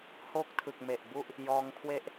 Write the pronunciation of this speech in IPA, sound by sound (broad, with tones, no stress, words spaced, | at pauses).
hoː˥˩k̚tʰɯ˨˩k̚me˨˩ʔbu˥˩ʔ | jɔː˧ŋkʰwe˥˩ʔ